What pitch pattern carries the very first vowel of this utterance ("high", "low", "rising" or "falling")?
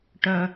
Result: low